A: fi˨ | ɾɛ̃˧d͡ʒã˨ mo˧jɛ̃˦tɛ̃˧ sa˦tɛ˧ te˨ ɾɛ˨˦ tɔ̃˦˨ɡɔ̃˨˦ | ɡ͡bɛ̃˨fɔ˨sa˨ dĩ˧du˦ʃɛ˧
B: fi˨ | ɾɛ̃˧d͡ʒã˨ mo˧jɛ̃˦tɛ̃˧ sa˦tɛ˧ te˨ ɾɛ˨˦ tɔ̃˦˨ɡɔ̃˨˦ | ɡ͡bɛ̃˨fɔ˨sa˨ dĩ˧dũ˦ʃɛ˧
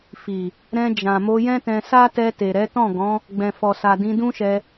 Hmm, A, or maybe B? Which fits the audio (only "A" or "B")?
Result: B